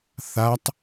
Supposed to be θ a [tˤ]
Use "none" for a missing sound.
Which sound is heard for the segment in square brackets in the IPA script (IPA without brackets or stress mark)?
tˤ